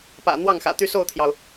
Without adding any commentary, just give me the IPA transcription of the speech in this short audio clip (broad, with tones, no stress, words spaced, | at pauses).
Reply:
pä̰˨˩ n̪wɑ˥˩ŋxä̰˨˩ t̪y˥˧so˥˩ʊ̯t̪ʰjɑ˩ʊ̯